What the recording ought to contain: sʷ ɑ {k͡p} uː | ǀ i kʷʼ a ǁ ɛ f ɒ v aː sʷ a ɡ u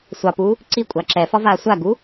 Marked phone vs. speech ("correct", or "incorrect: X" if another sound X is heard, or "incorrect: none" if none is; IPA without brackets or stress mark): incorrect: p